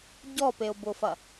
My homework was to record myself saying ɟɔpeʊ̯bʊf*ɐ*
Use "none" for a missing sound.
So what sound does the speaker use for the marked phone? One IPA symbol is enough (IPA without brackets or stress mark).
ɐ